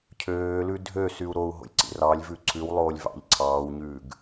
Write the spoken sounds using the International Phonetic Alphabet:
cʰøːlʉ dʱø syu̯ɾou̯ɦo̰lʲ ǀḭrɑlʲvʉ ǀʰʉwlˠoːlʲ vɑ̰ʎ ǀʰɑːwɲʉːɡ

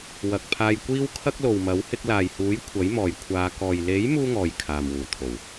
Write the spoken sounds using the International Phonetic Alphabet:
wɐ˨k̚ pʰaː˧jkʷiː˥wkʰɐ˥k̚ lo˨wmɐ˨˥w hɪ˧k̚laː˨jhuː˨˥j kʷʰɐ˨˥jmɔː˨j kʷʰaː˨˧kɔː˨j le˨˥j muː˥ŋɔː˨j kʰaː˨mwuː˨˩t̪ʰo˨˩w

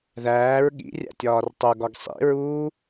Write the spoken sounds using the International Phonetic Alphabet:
ðæːɹ ɠḭrʲæ̰tʲɒːr tˤoɡɒɡ sˤḭɹuː

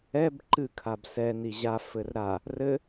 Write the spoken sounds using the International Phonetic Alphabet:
ɛb ǃɨ kʰabsɛ niʑa fɘrɾa | rɘ

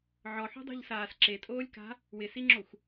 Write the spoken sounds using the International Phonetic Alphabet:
ʕɔħo̤dˤo̤ʎsaːs ǁetʼoːlʲka̤ | wɪsiŋ͡ǁoxʷ

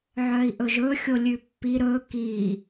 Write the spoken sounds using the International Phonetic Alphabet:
ʕœi̯ʔɵʒɵ xʲolʲʉpːi ɾɵ ki

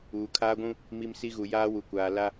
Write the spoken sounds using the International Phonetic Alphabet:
uː˨kʰaː˦ɡʷũ˦ | mi˦m si˦ɣu˨ jaː˦wu˨kʷaː˨ la˦

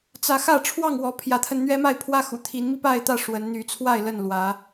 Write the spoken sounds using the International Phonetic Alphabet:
t͡sä˨˦xä˥˨ ʈ͡ʂʰwɑ˥˨ŋwɔ˨˦ pʰjä˨˦t̪ʰə˧nn̪ɥɛ˦ ma˥˨ɪ̯ pʰwä˦xṵ˨˩t̪ʰi˨˦nmi˥˨ pa˥˨ɪ̯t̪ä˥˨ ʂwə˨˦n n̪y˨˦t͡sʰwa˥˨ɪ̯ lə˥˨nlwä˨˦

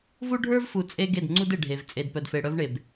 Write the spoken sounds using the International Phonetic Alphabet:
vu˦ɖʱə˞˦vfu˨ t͡sʼe˦ ɡe˦˨dŋ͡ǀu˦de˨ ɖʱe˨v t͡sʼe˨dpœ˨dfe˨ɽœ˦v ɳe˨b

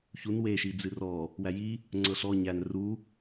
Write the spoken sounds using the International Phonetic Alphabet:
çun weʃi d͡zɨrɔ | wæji | ŋ͡ǀɤɬɔ ɲæn ru

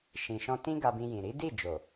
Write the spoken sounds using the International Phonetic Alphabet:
ʃĩ˨ʃɔ̃˧ tĩ˦ɡa˧bĩ˧jĩ˨ ɾi˨˦di˦˨d͡ʒo˨

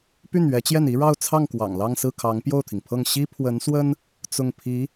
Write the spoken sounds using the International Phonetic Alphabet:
py˥˩nɥɛ˧˥t͡ɕjɛ˥˩n i˥ɻɑ˥˧ʊ̯t͡sʰɑ˥˩ŋ kwɑ̰˨˩ŋlɑ˥˧ŋsɹ̩˥˩kʰɑ˧˥ŋ pjo˥˩ʊ̯t̪ʰi˩ŋpʰɤ˥˩ŋ ɕi˥pʰwə˧˥nswə˥n | t͡sʊ˥˩ŋpʰi˧˥

